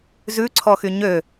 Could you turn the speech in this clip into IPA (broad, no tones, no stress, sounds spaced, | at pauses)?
z ʉ ǀʰ ɔ x y ɲ ø